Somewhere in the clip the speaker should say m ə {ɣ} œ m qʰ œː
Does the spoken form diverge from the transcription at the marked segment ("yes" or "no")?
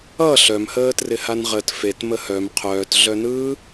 yes